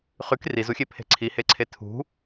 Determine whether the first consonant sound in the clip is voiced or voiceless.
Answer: voiceless